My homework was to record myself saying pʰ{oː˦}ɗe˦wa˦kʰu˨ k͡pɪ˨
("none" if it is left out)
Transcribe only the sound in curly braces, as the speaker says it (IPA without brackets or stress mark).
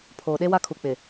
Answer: oː˨